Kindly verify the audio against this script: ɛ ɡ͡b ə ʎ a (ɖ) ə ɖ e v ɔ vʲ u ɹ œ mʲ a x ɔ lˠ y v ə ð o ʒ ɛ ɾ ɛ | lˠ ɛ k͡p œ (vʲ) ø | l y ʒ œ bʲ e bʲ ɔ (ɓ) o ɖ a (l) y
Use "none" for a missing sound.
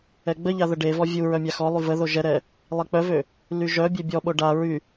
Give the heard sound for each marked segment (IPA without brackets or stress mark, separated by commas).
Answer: ð, v, ɓ, ɹ